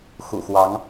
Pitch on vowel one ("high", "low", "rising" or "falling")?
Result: low